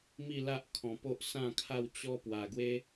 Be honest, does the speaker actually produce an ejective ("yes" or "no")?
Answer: no